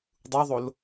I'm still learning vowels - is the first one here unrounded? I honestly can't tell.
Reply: no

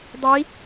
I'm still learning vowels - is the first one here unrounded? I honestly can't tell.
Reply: yes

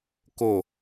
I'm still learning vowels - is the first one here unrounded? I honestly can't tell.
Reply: no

